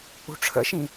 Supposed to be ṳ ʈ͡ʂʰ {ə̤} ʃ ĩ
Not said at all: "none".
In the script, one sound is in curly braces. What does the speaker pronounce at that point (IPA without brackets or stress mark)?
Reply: ə̰